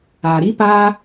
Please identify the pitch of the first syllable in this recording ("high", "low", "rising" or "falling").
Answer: low